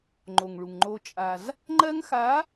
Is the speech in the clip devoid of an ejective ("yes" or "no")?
no